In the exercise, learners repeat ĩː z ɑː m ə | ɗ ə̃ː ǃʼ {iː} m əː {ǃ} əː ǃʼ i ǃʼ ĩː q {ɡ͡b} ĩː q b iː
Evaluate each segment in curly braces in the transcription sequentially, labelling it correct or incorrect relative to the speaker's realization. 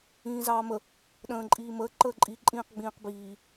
correct, correct, correct

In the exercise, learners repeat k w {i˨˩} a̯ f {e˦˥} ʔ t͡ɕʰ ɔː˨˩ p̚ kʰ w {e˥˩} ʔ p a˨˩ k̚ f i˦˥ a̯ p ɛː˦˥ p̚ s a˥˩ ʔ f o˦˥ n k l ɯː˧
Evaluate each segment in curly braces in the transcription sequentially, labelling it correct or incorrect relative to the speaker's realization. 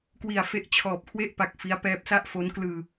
correct, correct, correct

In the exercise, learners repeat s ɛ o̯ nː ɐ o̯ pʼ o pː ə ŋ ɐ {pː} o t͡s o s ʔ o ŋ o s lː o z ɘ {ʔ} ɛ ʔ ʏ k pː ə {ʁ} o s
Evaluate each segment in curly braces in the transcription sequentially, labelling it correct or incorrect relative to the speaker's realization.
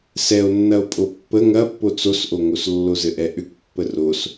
correct, correct, incorrect: r

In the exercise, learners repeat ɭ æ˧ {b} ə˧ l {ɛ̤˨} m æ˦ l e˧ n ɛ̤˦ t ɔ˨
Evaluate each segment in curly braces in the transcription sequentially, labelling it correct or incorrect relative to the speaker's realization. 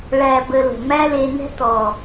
correct, incorrect: ə̤˨

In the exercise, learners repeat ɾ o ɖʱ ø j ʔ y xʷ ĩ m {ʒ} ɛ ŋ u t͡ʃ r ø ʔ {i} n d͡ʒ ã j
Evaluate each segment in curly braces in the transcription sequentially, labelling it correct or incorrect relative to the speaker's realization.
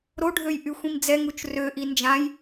incorrect: d͡z, correct

